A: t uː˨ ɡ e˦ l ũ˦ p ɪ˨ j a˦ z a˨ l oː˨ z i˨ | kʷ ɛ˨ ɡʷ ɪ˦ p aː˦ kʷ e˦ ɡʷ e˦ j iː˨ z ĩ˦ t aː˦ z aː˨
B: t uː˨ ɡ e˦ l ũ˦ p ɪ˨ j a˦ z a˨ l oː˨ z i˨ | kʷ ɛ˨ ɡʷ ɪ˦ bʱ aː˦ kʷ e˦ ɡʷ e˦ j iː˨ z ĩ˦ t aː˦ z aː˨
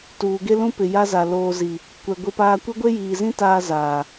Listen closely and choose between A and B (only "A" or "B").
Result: A